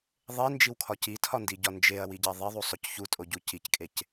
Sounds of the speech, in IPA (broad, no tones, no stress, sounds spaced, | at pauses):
ðˤ e n d͡ʒ i w kʰ ɒ c i tʰ ɒ n d i ɟ ɒ n d͡ʒ e ɐ̯ w i ɟ æ ðˤ i ðˤ u sˤ o c ç u tʼ o ɟ u c i c kʼ e c